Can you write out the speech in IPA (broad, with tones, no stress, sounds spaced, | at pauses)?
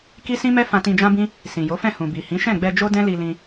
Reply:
k i˦ s ĩ˦ m ɛ˦ f ã˧ t ĩ˧ d͡ʒ ã˦ b ĩ˦ | s ĩ˨ j o˨˦ f ɛ̃˦˨ h ũ˨ b i˨ h ĩ˨˦ ʃ ɛ̃˦˨ ɡ͡b ɛ˧ d͡ʒ o˦ d ɛ̃˦ l i˧ l ĩ˧